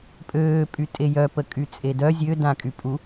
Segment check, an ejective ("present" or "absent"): present